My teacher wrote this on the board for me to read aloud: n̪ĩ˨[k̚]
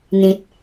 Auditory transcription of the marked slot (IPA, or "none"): t̚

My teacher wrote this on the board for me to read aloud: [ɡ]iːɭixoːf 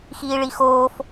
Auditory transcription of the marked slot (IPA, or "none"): x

